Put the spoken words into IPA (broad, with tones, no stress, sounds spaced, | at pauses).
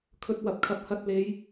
kʰ ɵ˧ t̚ w ɐ˨ p̚ kʰ ɐ˨˥ p̚ h ɐ˨˥ t̚ l e˨˧ j